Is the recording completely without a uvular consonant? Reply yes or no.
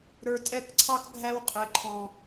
no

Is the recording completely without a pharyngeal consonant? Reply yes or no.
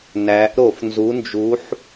no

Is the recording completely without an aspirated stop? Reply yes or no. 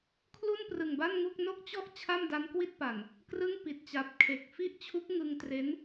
no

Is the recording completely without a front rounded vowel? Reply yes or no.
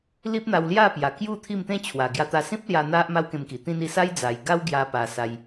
yes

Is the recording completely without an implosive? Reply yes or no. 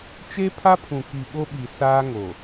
no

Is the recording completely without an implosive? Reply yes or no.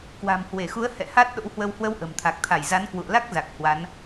no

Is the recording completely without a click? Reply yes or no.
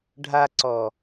no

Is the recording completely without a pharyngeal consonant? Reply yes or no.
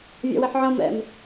no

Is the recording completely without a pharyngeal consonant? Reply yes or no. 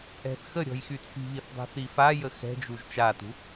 yes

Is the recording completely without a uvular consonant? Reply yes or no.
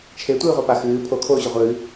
no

